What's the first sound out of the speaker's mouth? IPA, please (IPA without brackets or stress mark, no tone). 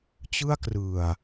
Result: t͡ɕ